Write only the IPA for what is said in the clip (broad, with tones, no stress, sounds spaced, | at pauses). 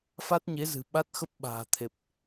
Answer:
f a˦˥ t̚ ɲ e˨˦ z ɨ̤˨˩ ɓ a˦˥ t̚ x ə˦˥ p̚ ɓ a̤ː˨˩ t̪ʰ e˨˩ p̚